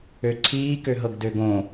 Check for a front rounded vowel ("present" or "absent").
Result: present